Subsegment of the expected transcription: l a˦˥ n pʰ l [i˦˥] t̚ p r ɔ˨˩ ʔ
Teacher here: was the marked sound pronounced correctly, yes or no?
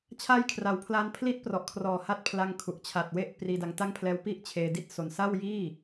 yes